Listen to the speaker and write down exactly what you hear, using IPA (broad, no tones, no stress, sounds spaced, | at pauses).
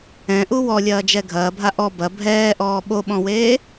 ɛ̃ ʔ u w ɔ lʲ ɐː d͡ʒ ɛ ɡʱ ɐː bʱ a ʔ ɔ b ɐ bʱ ɛː ʔ ɔː ɓ o ɓ ɔ̃ w eː